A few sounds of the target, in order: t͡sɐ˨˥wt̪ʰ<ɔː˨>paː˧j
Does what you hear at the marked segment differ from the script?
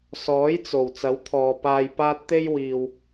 no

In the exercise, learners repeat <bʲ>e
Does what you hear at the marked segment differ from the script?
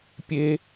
yes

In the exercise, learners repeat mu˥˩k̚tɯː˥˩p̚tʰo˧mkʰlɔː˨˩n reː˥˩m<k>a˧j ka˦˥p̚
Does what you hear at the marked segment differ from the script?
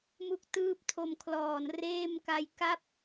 no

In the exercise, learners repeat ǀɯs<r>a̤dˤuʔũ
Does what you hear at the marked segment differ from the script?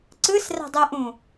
no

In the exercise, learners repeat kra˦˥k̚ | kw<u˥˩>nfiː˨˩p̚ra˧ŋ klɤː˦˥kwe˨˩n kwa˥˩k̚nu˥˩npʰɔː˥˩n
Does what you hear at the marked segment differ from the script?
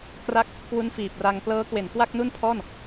yes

